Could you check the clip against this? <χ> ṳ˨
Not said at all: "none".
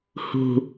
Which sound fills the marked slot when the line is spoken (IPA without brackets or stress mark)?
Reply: h